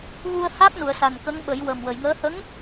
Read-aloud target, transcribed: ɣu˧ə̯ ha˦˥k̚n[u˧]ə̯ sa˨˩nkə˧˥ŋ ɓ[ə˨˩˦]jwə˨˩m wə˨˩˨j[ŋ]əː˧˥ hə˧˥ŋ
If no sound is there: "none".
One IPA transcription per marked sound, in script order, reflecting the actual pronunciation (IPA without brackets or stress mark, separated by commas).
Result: u˨˩˨, ə˨˩˦, ŋ